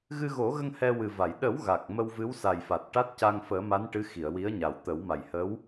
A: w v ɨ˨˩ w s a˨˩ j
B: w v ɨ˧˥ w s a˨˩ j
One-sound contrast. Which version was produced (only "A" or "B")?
B